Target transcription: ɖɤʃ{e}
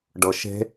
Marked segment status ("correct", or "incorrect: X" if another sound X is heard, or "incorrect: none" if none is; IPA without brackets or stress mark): incorrect: e̤